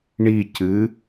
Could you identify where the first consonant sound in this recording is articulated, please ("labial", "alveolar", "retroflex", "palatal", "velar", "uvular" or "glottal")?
retroflex